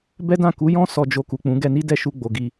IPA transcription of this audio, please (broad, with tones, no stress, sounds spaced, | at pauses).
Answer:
b ɛ˦ d ã˦˨ k u˨˦ j ɔ̃˦ s ɔ˧ d͡ʒ o˧ k u˨ k͡p ũ˨˦ ɡ ɛ˧ n i˦ d ɛ˦˨ ʃ u˧ ɡ͡b o˨ ɡ i˧